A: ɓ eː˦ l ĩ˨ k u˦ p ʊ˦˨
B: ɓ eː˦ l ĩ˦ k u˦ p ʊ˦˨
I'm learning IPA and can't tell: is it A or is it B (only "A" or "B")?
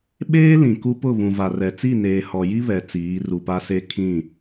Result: A